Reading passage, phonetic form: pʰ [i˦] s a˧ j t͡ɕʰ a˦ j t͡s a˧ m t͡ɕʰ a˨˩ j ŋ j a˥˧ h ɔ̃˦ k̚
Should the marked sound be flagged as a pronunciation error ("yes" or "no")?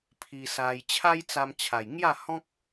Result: yes